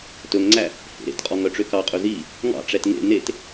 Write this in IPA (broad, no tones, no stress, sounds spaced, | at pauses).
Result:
t ɵ ŋ ŋ͡ǀ æ | h ḛ ɾ ḛ t qʼ ɔ ŋ œ ʈ͡ʂ ø k ɑ qʼ ɵ z i | ŋ ɑ̰ ʈ͡ʂ ɛ t ŋ ḛ n e t